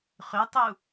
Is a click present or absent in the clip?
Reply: absent